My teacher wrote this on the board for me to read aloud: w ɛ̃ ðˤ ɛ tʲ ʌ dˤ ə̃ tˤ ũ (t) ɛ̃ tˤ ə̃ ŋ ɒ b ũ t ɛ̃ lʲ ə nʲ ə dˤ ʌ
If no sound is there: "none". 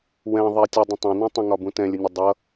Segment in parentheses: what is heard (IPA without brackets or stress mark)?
n